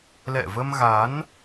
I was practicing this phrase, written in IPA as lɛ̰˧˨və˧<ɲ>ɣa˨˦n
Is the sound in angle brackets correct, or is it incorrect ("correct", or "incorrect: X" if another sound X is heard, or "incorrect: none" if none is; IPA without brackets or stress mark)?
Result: incorrect: m